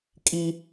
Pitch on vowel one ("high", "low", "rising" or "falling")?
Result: high